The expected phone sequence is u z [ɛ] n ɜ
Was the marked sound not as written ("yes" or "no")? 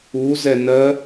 no